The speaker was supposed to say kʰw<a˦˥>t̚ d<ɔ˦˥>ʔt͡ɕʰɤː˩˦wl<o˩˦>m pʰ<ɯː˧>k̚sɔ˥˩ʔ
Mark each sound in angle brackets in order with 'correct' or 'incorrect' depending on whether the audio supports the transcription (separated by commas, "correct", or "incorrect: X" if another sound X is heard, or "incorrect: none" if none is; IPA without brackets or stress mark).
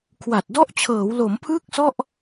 incorrect: a˨˩, correct, correct, incorrect: ɯː˥˩